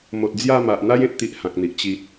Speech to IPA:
m o˨ t̚ d͡z j a˥˧ m a˨ ʔ n̪ a˦ j ẽ˨ t̚ t̪ i˦ ʔ h ã˨ k̚ n̪ i˨ ʔ t͡ɕ i˨ t̚

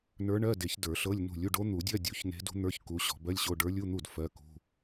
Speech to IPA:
n ə˞˧˥ ɳ ɜ˧˥˧ d e˨˩˦ ç d ə˞˨˩˦ ɬ ɤ˧˥˧ lʲ n ṳ˥˩ lʲ u˧˥˧ ɖ o˧˥ n̪ u˨˩˦ dʲ ɜ˧˥˧ dʲ u˨˩˦ ç n e̤˧˥ d ṳ˧˥ n̪ ə˞˧˥˧ ç k u˧˥ ɕ ɔ̤˨˩˦ b ɜ˧˥˧ lʲ ɕ o˧˥˧ ɖ ə˞˧˥ lʲ u˧˥˧ n̪ u˥˩ d f ɜ˧˥˧ k ṳ˧˥˧

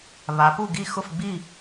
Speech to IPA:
β a˩˧ p u˥˩ ɡ i˥˩ x ʊ˥˩ f ɡ͡b i˥˩

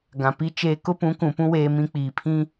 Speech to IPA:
ɡ ã˨ p i˦ t͡ʃ eː˦ k ʊ˦ p ũ˨˦ k ũ˨ p ũ˦ w eː˦ m ĩ˦ k͡p iː˨ pʰ ĩ˦

